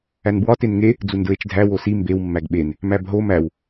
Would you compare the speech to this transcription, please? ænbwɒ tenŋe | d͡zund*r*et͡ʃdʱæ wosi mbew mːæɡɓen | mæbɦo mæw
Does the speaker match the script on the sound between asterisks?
no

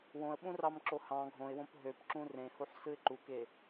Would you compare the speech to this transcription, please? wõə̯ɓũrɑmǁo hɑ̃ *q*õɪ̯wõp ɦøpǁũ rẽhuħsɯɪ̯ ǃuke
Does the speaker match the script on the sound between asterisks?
no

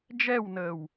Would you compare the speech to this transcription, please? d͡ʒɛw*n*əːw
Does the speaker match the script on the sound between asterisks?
yes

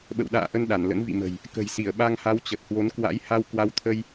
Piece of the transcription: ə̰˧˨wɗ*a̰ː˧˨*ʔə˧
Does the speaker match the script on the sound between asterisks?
yes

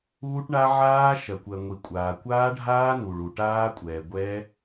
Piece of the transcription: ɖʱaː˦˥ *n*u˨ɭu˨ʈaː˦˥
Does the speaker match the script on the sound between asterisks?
yes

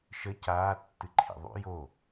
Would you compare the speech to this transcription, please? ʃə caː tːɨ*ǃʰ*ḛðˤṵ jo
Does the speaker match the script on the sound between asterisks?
yes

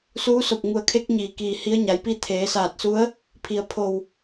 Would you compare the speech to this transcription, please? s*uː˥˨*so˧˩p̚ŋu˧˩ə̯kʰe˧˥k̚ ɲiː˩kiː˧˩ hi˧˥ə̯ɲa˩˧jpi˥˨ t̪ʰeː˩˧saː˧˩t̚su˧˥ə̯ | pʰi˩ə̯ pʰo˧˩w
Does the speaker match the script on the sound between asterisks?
no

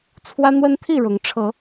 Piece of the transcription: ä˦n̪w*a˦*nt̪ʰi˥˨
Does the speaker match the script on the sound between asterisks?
no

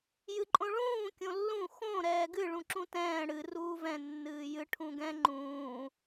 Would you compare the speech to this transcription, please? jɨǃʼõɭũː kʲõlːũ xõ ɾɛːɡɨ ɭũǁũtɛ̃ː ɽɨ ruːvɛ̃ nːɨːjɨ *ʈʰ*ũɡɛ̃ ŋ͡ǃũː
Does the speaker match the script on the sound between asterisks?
yes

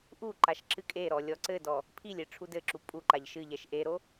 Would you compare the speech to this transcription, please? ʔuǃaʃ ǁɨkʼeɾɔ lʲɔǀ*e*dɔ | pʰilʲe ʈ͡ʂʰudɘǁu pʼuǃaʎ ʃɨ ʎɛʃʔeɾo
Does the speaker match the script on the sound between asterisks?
no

